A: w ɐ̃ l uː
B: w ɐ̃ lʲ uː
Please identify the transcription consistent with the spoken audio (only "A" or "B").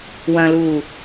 A